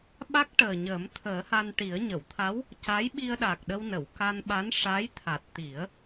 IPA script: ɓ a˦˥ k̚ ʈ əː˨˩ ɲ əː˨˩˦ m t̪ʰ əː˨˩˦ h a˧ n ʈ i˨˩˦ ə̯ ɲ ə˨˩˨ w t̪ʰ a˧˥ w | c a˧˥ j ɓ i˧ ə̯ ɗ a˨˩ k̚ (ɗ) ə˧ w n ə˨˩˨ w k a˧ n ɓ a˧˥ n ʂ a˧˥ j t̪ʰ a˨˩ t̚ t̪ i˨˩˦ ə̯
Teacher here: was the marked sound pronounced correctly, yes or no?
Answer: yes